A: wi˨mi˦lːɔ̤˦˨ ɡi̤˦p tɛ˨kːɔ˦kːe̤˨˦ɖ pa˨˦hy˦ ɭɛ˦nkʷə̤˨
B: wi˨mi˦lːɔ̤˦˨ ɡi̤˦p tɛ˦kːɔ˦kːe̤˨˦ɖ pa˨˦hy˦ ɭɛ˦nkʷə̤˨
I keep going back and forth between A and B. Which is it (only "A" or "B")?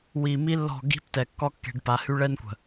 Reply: A